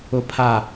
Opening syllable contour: low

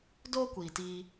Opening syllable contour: high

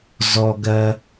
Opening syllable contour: low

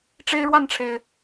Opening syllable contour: high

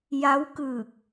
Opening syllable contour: rising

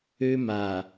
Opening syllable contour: high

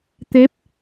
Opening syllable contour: rising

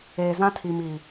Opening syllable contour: low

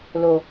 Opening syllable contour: low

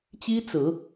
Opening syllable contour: high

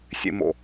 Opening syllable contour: low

